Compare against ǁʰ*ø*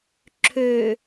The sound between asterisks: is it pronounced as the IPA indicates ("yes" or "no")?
yes